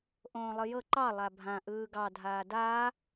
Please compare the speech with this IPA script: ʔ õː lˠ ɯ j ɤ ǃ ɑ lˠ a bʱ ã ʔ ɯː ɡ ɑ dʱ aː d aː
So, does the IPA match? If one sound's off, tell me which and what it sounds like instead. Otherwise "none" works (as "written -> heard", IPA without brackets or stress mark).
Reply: none